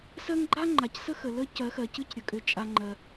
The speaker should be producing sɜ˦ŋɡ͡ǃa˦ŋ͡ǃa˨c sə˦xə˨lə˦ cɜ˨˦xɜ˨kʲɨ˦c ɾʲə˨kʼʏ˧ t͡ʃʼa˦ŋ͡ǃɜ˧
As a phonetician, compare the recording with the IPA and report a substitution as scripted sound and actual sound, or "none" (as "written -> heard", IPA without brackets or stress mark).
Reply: kʲ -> c